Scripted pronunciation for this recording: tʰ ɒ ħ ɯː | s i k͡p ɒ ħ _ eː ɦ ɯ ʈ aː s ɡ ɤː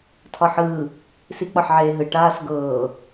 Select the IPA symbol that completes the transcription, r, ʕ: ʕ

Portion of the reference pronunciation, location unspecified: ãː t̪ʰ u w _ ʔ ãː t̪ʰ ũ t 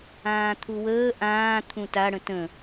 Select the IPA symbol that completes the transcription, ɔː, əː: əː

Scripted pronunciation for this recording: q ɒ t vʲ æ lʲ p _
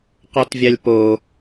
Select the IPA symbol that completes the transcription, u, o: o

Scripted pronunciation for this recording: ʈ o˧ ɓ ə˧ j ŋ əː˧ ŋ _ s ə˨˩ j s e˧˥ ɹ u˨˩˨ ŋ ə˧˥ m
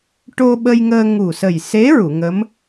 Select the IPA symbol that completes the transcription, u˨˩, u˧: u˨˩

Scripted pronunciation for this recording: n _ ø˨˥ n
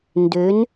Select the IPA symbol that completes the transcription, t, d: d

